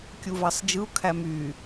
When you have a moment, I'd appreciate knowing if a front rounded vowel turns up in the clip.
yes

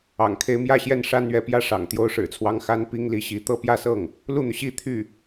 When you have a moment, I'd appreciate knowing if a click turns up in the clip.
no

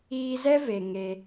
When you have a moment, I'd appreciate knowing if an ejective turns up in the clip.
no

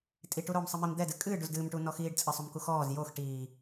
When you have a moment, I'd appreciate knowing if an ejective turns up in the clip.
yes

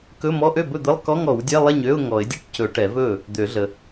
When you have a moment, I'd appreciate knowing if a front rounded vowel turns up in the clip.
yes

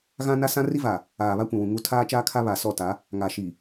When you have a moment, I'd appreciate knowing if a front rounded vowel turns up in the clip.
no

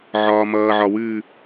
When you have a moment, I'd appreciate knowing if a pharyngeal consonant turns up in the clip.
yes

